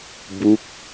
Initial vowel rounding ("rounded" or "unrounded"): rounded